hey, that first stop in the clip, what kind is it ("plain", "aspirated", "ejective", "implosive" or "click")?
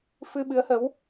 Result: implosive